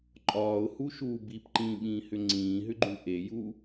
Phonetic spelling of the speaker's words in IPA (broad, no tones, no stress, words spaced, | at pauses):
ǃʼɒːʊ̯huʃuː bipǃĩːɓĩːhʏ ŋ͡ǀĩːɦʏɡ͡ǃu ʔeju